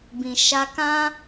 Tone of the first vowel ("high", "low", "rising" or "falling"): low